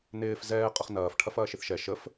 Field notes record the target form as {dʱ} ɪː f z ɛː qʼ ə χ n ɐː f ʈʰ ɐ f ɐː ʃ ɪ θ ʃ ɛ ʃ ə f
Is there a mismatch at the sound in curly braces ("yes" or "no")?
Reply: yes